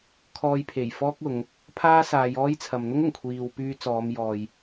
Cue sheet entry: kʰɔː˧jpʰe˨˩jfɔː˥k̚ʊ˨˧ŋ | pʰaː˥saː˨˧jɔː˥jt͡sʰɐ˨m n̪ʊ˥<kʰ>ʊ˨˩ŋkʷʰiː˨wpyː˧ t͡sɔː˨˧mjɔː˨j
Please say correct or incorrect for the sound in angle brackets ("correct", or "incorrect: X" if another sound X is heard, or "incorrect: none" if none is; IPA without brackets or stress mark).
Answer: incorrect: ŋ